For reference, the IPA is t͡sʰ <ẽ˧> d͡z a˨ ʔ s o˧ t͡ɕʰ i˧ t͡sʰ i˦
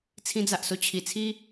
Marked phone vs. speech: incorrect: ĩ˧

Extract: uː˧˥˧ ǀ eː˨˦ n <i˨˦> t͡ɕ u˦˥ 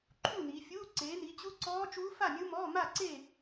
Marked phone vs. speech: correct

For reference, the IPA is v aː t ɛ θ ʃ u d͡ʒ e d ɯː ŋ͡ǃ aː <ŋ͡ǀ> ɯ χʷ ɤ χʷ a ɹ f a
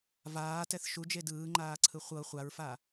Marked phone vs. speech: incorrect: ǀʰ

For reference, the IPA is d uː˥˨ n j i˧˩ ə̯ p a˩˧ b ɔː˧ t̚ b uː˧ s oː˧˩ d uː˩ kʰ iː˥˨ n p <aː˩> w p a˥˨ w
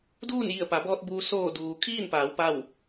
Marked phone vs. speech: incorrect: aː˩˧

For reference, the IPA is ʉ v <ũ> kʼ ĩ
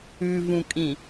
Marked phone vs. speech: correct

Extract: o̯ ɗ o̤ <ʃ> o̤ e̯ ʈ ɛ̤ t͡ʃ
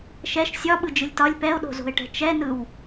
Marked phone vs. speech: incorrect: z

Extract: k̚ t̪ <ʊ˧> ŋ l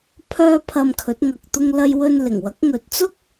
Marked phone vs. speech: correct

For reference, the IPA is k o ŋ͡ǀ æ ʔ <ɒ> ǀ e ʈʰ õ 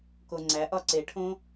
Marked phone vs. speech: correct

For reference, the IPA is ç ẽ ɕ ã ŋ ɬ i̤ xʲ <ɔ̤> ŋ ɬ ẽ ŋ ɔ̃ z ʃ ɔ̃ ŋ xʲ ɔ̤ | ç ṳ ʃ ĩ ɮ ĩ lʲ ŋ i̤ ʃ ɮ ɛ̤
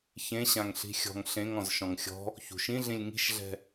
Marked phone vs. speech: correct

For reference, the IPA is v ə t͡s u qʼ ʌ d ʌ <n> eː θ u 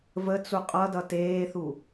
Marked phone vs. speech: incorrect: t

